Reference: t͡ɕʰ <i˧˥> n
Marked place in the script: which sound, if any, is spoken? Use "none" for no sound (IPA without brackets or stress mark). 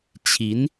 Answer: i˧˥